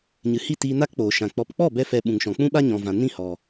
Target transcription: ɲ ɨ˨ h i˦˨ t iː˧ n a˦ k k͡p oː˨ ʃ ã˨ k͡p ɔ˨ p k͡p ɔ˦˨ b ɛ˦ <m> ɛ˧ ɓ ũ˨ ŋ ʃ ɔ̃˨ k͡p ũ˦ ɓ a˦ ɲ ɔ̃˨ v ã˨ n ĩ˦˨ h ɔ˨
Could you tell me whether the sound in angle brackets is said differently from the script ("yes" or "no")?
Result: yes